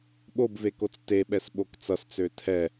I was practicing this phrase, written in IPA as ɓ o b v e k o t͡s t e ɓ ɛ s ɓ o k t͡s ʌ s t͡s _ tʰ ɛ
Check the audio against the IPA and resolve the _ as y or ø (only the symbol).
ø